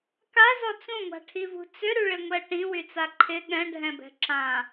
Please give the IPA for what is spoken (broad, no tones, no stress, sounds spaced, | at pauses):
k a z ɔ t͡s ũ ŋʷ a̤ ʈʰ i v ṳ t͡s ʏ ɾ y ɭ ɪ ŋʷ ɛ ʈ ĩ w y t͡s a ǃʰ ɪ ɠ ɛ̃ ɖʱ ɛ̃ b ɛ̤ ǁ ã